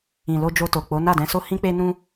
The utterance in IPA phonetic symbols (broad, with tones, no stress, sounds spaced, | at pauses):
ĩ˨ l o˧ d͡ʒ o˧ t o˨ k͡p o˨˦ n a˦˨ d ɛ̃˧ s o˦ h ĩ˦ k͡p e˦ n ũ˦